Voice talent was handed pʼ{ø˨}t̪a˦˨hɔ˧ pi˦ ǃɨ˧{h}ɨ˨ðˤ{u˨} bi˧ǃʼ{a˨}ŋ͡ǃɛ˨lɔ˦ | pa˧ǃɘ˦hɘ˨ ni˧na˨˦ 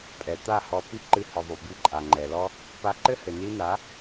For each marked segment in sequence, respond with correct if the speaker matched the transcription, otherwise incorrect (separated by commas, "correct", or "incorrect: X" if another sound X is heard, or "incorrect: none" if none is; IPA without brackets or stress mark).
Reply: incorrect: ɛ˨, correct, correct, correct